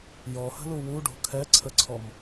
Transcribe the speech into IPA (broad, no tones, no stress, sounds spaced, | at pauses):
j ɔ h ə̤ l u w u ɖ o̤ kʰ ɛ ǀʰ ə ǀʰ ɔ m